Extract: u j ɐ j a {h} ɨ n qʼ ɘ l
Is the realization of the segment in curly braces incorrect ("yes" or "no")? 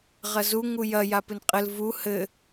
yes